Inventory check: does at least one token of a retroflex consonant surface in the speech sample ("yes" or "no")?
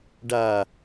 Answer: yes